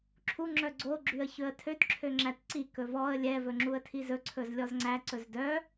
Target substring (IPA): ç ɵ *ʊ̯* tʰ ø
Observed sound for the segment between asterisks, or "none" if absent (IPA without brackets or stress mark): ə̯